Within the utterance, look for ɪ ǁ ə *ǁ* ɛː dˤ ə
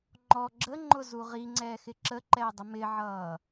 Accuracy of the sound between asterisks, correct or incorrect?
incorrect